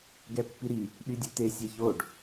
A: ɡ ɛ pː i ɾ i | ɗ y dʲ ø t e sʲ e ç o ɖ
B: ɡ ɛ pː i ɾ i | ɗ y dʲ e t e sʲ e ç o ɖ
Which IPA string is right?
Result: A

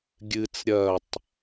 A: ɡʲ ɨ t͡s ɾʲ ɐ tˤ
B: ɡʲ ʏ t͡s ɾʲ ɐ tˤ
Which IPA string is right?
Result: A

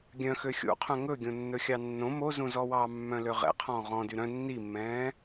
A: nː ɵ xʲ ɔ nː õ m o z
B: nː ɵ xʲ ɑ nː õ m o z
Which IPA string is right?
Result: B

